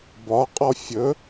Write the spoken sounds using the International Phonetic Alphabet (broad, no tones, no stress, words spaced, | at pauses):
bɒ qʼɔfʲɵ